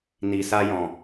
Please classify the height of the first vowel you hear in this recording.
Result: high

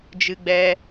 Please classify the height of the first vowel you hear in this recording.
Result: high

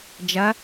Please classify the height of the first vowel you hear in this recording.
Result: low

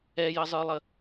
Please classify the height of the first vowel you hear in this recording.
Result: mid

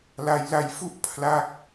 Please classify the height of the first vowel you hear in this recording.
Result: low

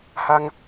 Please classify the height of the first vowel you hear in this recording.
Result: low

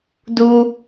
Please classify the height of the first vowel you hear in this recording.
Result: high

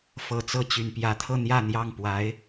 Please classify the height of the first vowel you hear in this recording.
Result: mid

